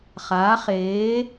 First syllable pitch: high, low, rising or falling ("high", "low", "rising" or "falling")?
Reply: rising